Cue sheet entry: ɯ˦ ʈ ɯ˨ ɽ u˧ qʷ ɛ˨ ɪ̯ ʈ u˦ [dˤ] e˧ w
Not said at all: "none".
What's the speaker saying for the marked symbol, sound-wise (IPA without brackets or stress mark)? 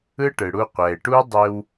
dˤ